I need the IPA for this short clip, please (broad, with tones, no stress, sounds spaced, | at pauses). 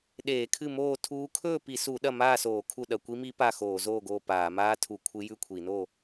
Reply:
ɗ eː˧˩˧ kʰ ɨ˥˨ m oː˥˨ tʰ uː˧˥ kʰ ɵː˥˨ p i˧˩˧ s u˧˩˧ ɗ ɐ˥˨ m aː˥˨ s oː˧˩˧ kʰ u˥˨ ɗ ɐ˧˩˧ kʷ i˧˥ m i˧˥ p a˥˨ x oː˧˩˧ z oː˥˨ ɡ oː˥˨ p aː˧˩˧ m aː˧˥ tʰ u˧˩˧ kʷʰ ɨ˧˥ j ʉ˥˨ kʷʰ i˧˩˧ n o˥˨